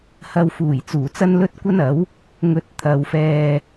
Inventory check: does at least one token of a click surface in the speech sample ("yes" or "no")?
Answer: no